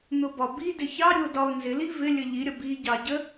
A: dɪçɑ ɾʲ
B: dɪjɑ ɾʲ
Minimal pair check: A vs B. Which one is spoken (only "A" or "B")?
A